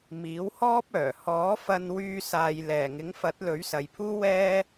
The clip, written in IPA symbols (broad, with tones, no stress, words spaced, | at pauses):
miː˨˥whɔː˥p̚œː˨˩ hɔː˨˥fɐ˧nwyː˧saː˨j lɛː˨˩ŋɪ˨˥ŋfɐ˨˥t̚ lɵ˨˥ɥsɐ˨jpʰuː˥ wɛː˥